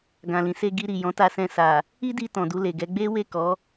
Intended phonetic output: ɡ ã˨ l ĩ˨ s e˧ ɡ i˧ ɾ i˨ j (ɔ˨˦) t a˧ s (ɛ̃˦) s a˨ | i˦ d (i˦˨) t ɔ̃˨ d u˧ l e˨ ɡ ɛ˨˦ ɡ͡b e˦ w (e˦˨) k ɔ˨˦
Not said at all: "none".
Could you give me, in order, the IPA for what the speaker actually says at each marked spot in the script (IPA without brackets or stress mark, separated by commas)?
ɔ̃˨˦, ɛ̃˧, i˧, e˦˨